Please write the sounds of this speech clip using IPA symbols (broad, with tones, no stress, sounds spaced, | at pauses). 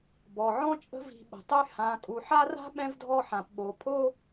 b ɔ˩ ʕ ɔ̃˦ t͡ʃʼ ə̤˦ v i̤˨ ɓ ə̤˩ tˤ y˦ h ã˨ kʼ u˩ ħ a˥ r a̤˥ ɓ ɛ̃˥ v dʱ ɔ˦ ħ ã˩ p ɓ o˨ pʰ o˥